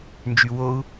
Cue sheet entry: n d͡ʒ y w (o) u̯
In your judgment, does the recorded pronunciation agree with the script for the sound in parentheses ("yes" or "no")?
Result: yes